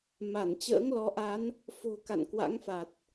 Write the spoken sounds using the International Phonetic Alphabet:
ma˧˩n t͡ɕə̰ː˧˥ŋlɔ˨˦ʔa˨˦n | fo̤˨˩ka̰˧˨n kwa̰˧˥ŋfa˨˩t̚

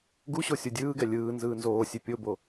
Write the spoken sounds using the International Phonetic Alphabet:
ɡuɕo sʲodʲɯːɡɛ lʲɯː nzɯːnzoːsʲe pʲobo

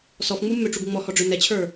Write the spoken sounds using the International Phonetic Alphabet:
sɔfŋ͡mumːøʈ͡ʂuɡ ŋ͡mɔhɔɖ͡ʐø nɛt͡ɕʰə˞

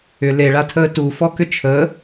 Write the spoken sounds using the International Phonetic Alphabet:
ʏ leɭatʰəː tufɔkʏ t͡ʃʰəː

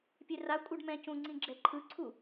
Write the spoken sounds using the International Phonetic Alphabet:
pʲerakʷʼɤɖ mɛ̃cũ ŋ͡ǀĩɡ͡ǁɛǃʰɯǀʰu

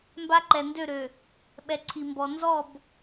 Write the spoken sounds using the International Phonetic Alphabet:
mba˦ǃɛ˨ndø˦˨ɾø˨ | ɓɛ˨ǀʰi˨mbɔ˨ nzɔ˦˨b

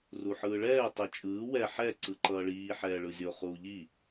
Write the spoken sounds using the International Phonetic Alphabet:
ruħɯːɭɛː tˤɛt͡ʃʼɯː wɛ ħɛ ǀɯǃʌːɭiː ħɛːɭɯzʲo χuːʎi

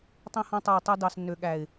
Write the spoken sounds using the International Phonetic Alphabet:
tˤẽ˧hɔ̃˧tˤø˨wtˤe˧ dɑ˨snːø˨ɠæ˨ɪ̯

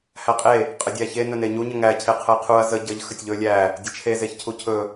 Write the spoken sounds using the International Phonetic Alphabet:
hæqʼe | qʼədʲæçe nɵneɲu ɲəŋæ cʰeqʰəjqʰuɐ̯ zə ɟəʎ xətʲʎɵ lʲæ | dʲət͡ʃʰe zeçcʰucʰɵ

